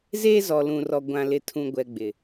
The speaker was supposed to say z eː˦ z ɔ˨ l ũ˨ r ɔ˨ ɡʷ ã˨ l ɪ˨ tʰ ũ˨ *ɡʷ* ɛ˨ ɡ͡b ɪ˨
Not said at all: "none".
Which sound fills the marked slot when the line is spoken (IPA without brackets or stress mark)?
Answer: ɡʷ